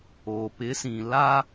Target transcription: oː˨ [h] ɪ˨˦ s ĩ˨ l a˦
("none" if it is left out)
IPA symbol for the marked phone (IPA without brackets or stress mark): p